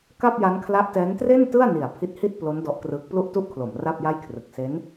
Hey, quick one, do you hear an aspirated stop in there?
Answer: yes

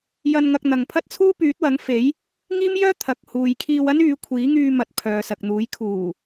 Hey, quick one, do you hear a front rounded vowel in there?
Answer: yes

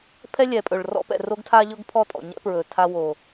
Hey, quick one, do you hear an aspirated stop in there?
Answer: yes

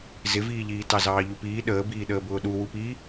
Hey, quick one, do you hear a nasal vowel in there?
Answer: no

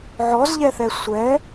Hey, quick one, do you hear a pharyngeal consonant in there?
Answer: yes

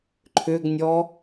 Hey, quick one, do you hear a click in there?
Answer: yes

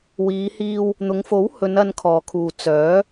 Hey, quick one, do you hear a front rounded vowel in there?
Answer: yes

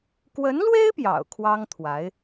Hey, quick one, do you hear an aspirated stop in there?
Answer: yes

